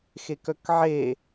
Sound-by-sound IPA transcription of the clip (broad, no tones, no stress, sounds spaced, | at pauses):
x e k œ k ʕ e